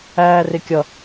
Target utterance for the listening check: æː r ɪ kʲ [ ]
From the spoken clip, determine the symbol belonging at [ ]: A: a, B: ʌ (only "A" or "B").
B